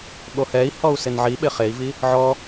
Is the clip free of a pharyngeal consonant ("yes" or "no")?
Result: no